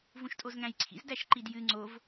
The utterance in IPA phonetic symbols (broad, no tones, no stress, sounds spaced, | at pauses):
v ũ ʃ tʼ o z ŋ æ̃ j ǀʰ ḭ z d æ ʃ ǃ i d j ɨ ŋ͡ǀ o v